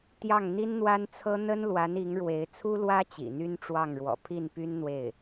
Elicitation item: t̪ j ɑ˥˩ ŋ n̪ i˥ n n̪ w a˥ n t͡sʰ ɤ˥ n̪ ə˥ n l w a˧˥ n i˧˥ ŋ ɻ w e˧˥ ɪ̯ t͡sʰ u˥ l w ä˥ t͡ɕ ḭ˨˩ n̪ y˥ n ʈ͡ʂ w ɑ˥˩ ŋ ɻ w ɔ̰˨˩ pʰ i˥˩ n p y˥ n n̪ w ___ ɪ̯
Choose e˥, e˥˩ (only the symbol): e˥˩